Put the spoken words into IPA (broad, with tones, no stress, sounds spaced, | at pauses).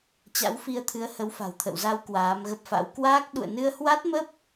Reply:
t͡ɕ a̰˧˥ w f i˧ ə̯ t̪ʰ ɨ˨˦ ə̯ h ə˨˦ w f a̤˨˩ w t̪ʰ ə̰˧˨ w z a˧ w k w aː˨˦ m ɣ ə˦˥ p̚ f a̰˧˥ w k w aː˦˥ k̚ ɗ ṵ˧˨ ə̯ n ɨ˧ ə̯ h w a˦˥ t̚ m ə˦˥ p̚